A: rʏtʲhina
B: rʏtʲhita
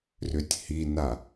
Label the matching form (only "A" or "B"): A